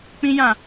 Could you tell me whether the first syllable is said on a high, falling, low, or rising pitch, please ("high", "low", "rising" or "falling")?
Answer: high